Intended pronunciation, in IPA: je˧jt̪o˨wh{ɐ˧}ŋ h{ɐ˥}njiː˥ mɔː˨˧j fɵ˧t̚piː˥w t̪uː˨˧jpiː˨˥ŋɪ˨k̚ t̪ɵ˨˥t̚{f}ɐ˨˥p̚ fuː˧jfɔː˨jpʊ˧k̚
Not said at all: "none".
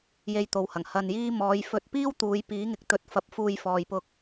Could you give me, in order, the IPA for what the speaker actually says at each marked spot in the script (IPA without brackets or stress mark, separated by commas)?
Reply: ɐ˨˩, ɐ˧, f